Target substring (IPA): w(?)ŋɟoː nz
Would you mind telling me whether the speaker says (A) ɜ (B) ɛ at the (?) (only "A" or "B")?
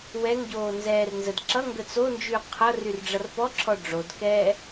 B